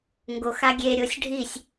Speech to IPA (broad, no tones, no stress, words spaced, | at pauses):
ŋɡoxa ɡʲeɾʲosʲ ɖʱisʲ